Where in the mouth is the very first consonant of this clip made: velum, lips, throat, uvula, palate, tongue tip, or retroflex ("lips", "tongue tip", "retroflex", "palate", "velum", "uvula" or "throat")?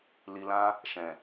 tongue tip